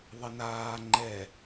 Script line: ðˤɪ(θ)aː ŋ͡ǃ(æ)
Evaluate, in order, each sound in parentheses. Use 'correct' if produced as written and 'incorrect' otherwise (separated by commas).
incorrect, incorrect